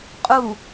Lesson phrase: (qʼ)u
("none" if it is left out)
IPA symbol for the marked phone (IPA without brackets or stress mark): qʼ